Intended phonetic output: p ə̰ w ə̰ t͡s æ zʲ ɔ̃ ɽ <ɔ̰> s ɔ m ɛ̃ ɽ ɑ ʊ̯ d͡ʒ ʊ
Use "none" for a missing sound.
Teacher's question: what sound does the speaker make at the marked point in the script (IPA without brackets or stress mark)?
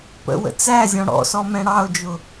ɔ̰